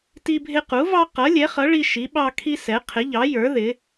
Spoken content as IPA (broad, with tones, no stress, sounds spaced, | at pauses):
t i˦ bʱ ɪ˦ q u˨˥ v ɑ˦ q ʌ˨˥ lʲ ɛ˨˥ χ ʌ˨˥ ɭ i˦ ʃ i˨˥ ɓ ɑ˦ kʰ i˦ s ɛ˨˥ qʰ ɪ˨˥ ʎ ɑ˨˥ j ə˞˨˥ ð ɪ˨˥